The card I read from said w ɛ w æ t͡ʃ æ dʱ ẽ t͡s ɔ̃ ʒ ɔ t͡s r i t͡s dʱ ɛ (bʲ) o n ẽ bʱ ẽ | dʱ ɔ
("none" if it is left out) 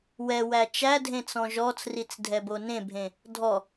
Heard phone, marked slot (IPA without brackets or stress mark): b